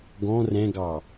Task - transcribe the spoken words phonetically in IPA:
ɡ ɔ̃ r ɛ̃ ɡ ɑ

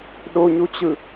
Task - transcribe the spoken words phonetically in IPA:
ɗ o ɲ u t͡ɕ ɯ

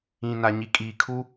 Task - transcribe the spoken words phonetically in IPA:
ĩ˨ n a˨ ɲ i˨ kʼ iː˨ kʰ u˦

